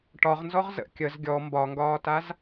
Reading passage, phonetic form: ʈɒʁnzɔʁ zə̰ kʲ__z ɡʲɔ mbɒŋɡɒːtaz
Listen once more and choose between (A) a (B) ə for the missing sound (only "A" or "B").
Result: B